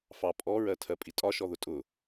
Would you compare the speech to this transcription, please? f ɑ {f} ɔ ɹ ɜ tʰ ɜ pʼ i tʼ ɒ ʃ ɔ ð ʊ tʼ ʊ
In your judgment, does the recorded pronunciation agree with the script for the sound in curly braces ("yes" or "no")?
no